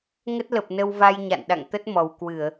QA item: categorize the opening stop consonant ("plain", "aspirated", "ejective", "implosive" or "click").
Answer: plain